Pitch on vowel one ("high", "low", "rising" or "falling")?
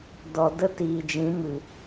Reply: low